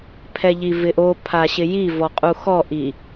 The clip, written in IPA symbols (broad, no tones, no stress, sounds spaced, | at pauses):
pʰ ɛ ʎ i v ɪ ʔ o pʰ a ɕ ɪ j i v ɔ qʼ u x ɔ ʔ i